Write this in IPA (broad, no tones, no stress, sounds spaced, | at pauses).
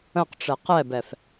ə̃ q ʈ͡ʂ ɛ q ɛ b ɛ f